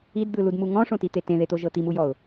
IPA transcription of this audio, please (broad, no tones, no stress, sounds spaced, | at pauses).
i d d̪ ɯ l u d m u ŋ ɔ̃ ʂ õ t i t̪ e t ẽ ð e t̪ o ʒ ɤ t̪ i m u j ɔ ʊ̯